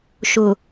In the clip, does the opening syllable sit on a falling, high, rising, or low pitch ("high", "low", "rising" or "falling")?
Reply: low